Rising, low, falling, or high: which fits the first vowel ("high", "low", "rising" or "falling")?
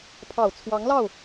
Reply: low